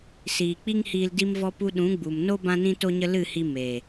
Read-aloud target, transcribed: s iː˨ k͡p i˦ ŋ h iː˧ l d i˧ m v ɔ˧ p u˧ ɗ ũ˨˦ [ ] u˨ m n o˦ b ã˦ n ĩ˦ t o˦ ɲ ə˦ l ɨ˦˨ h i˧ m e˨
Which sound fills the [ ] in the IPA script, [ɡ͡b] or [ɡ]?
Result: ɡ͡b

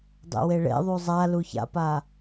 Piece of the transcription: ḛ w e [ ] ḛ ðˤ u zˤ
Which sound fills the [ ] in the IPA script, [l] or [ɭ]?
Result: ɭ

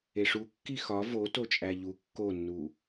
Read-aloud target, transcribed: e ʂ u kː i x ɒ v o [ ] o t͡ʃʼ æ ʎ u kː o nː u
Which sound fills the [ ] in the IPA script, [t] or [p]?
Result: t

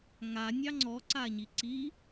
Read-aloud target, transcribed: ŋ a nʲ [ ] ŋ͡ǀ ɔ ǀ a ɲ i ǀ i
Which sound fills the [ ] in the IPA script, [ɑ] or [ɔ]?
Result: ɑ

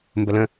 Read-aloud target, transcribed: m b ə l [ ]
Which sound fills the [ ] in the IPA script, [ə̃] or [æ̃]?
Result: ə̃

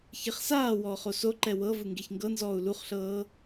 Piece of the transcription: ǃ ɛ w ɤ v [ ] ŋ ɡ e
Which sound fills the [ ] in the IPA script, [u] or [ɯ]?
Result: ɯ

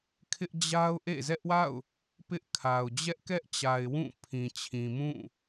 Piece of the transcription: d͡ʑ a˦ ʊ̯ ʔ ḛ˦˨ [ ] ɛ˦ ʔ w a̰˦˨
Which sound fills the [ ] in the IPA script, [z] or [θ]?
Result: z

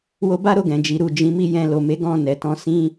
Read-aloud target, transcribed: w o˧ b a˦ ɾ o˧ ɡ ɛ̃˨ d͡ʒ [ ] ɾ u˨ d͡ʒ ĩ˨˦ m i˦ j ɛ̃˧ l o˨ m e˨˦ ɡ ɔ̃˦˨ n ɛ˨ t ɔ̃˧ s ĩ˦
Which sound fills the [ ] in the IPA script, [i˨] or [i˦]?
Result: i˨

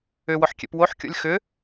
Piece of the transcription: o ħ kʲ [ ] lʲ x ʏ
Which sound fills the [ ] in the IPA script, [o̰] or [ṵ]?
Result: o̰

